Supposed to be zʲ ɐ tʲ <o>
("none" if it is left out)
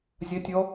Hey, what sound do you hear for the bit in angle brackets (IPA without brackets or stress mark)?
ɔ